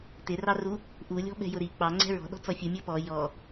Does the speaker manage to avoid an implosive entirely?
no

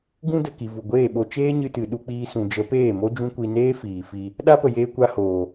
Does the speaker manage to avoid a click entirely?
yes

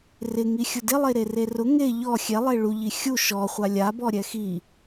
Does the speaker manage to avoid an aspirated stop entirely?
yes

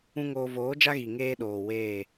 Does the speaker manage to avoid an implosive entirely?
no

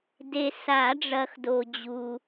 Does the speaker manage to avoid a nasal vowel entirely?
yes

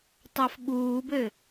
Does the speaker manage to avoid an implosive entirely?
no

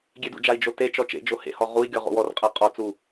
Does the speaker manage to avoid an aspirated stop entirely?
yes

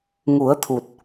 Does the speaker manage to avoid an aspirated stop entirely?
no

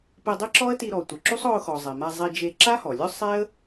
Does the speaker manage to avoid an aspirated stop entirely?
yes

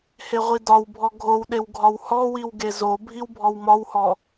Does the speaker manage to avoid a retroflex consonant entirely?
yes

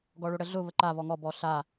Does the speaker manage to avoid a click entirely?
no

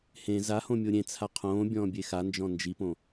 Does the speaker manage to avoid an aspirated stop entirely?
no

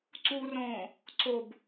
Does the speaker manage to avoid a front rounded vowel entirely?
yes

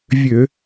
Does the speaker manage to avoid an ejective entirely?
yes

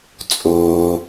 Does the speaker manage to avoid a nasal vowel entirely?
yes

